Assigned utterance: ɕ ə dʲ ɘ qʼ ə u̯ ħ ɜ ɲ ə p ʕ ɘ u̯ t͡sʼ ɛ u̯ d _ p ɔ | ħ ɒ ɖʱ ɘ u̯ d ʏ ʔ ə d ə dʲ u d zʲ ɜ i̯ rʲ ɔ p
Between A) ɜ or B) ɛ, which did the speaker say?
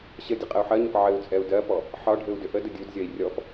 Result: A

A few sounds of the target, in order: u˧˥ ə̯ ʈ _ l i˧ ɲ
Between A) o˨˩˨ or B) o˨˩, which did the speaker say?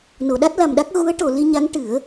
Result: A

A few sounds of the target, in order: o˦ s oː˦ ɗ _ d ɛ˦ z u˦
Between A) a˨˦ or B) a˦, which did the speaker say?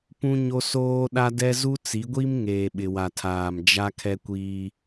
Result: B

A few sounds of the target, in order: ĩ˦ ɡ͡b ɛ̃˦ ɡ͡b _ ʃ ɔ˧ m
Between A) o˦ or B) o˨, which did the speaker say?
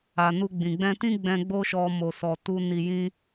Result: A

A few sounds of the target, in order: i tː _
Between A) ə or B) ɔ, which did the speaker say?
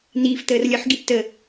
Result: A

